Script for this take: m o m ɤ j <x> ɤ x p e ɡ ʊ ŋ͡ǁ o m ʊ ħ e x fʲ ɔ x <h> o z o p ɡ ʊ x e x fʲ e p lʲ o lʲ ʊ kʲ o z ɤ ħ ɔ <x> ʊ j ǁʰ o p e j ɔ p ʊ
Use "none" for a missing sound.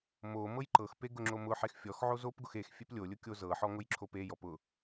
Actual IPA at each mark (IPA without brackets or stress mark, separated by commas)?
ǃ, ʕ, ŋ